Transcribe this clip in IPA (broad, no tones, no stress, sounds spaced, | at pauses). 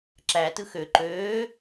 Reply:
ǁ æ t ɯ x ø ǃ øː